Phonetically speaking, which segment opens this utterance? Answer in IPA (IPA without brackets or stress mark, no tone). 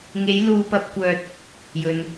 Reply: ŋ